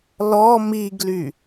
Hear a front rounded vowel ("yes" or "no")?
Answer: yes